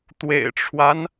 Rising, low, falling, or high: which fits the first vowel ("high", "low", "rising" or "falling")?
low